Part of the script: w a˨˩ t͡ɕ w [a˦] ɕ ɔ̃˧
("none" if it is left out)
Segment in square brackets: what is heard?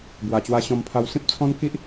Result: a˧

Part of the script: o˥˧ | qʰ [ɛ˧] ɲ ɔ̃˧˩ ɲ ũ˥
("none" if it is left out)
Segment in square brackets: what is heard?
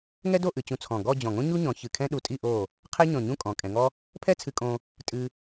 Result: ɛ˥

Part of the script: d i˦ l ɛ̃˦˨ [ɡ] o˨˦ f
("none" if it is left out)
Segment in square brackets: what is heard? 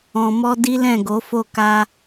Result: ɡ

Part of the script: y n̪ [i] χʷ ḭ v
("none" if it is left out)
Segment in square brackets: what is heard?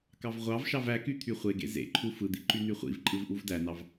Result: y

